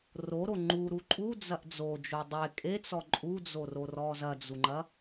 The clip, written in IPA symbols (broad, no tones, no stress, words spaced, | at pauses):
roɾo ŋ͡ǃuɾu ǃʼud͡zɐʔ d͡zod͡ʒo dˤe kʼet͡sɔ ǃʼud͡zororɔ zɐd͡zuŋ͡ǃɐ